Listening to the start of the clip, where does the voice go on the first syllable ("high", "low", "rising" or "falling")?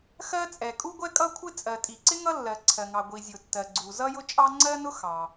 high